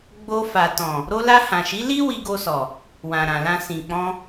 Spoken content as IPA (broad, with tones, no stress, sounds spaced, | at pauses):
ɡ͡b o˧ f a˨ t ɔ̃˨ | ɾ o˧ l a˧ h ã˨ ʃ i˨˦ l i˦ w i˧ ɡ o˧ s ɔ˨ | w ã˨ ɾ ã˨ l ã˧ s ĩ˨ k͡p ɔ̃˧